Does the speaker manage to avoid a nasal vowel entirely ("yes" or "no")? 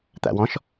no